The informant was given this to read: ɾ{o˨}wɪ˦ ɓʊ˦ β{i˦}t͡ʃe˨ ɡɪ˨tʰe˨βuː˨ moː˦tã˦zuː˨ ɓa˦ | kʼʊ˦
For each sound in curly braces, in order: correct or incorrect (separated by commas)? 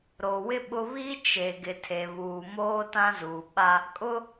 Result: correct, correct